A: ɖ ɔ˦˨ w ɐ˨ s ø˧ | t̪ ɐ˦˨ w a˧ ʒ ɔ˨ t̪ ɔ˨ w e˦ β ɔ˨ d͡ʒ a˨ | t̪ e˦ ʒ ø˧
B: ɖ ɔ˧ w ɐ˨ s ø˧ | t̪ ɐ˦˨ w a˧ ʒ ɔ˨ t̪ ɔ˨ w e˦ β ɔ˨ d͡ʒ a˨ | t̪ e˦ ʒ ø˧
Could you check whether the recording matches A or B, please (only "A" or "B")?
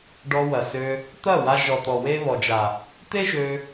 B